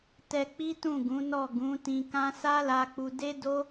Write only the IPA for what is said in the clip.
t ɛ˧ k͡p i˦ t ũ˦˨ ɡ ũ˨˦ n ɔ˦˨ ɡ ũ˨˦ t ĩ˧ k ã˦ s a˦ l a˧ k͡p u˧ d e˦ d o˦

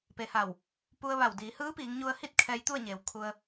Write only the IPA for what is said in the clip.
p e˩ h a˧˩ w | p u˧ ə̯ ʋ a˧˩ w d iː˩˧ h ɯː˧˥ p iː˩˧ ŋ ɲ u˧ ə̯ h i˥˨ t̚ kʰ ɛː˧ j t̪ u˥˨ ə̯ ɲ eː˩˧ w kʰ u˧ ə̯

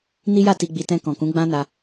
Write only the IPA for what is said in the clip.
n i˦ j a˦˨ t i˧ ɡ͡b i˧ t ɛ̃˧ k ɔ̃˨ k ũ˨˦ ɡ͡b ã˦ n a˧

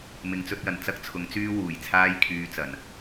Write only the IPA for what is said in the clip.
m ɪ˨˧ ŋ t͡s ɵ˧ t̚ j ɐ˨˩ n t͡s ɐ˥ k̚ t͡sʰ ʊ˨˥ ŋ t͡s yː˥ w uː˨˩ j t͡sʰ aː˥ j kʰ yː˧ t͡s ɐ˨˩ n

